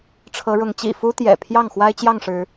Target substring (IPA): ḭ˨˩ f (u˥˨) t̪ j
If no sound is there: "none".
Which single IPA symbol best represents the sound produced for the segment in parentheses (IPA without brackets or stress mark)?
u˦